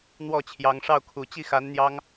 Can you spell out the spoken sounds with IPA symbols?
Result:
n̪ w ɔ˥˩ t͡ɕʰ j ɑ˧˥ ŋ ʂ ɑ˥˩ ʊ̯ kʰ u˨˩ t͡ɕ i˥˩ x a˧˥ n n̪ j ɑ˥ ŋ

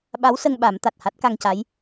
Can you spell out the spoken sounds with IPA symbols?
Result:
ɓ a˧˥ w s ə˧ ŋ ɓ a˨˩˦ m t̪ a˨˩ t̚ h a˦˥ t̚ k a˧ ŋ c a˧˥ j

